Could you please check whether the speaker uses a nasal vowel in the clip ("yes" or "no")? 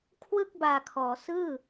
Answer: no